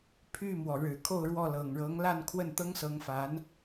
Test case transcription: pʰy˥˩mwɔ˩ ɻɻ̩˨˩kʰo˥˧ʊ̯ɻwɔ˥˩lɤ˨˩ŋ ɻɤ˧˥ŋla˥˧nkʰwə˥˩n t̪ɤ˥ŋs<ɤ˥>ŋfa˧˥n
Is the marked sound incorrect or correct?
incorrect